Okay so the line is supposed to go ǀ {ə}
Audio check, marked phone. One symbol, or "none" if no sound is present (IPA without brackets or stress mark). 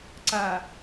a